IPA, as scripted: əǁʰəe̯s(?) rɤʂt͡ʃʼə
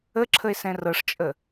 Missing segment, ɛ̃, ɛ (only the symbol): ɛ̃